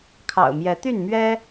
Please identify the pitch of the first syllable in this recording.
low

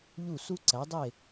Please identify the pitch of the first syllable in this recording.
falling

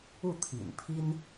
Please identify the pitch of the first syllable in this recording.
falling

